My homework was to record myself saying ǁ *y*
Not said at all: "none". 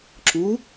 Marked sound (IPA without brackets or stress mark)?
u